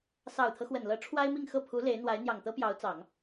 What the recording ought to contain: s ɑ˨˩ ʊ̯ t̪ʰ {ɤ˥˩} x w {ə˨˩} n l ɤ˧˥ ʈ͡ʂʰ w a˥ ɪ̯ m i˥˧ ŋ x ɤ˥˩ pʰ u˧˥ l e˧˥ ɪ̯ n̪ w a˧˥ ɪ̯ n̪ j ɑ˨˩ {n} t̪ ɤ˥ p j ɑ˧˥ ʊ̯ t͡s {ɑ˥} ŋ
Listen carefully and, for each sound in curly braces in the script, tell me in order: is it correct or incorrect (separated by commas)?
incorrect, correct, incorrect, incorrect